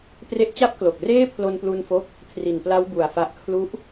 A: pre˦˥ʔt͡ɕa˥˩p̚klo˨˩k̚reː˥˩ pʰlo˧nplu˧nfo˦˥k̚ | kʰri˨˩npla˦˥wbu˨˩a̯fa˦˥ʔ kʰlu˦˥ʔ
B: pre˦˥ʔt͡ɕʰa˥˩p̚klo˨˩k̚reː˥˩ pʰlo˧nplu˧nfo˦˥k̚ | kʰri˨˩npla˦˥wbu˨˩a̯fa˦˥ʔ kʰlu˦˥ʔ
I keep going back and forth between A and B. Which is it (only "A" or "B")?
A